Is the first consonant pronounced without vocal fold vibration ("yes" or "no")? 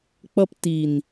yes